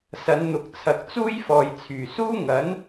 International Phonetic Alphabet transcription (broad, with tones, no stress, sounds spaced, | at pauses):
s ɐ˨˧ n n̪ ʊ˨ k̚ t͡sʰ ɐ˨ k̚ t͡s uː˥ j f ɔː˨ j t͡sʰ yː˨˩ s uː˥ ŋ ɐ˨˥ n